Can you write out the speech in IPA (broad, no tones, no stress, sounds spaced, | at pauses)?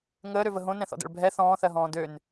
ŋ əː ɾ ø v ə ɦ õ n ɛ̃ θ ɔ̰ d ɛ̰ ɭ bʱ ɛ θ ɔ̃ː θ ɜ ɦ ɔ̃ː d ø n